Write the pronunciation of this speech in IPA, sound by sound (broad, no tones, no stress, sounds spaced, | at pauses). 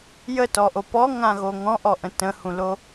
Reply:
j ə t ɔ ʔ o p ɔ ŋ ã ɣ o ŋ ɔ̃ ʔ ɔ ʔ ə̃ t ə̃ h ũ l o